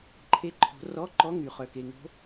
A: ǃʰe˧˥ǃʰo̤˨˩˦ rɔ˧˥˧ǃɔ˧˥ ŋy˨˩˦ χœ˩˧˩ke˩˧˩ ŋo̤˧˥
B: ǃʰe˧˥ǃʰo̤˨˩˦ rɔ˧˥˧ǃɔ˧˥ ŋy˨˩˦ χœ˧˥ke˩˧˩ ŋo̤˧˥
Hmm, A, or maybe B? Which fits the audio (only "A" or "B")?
A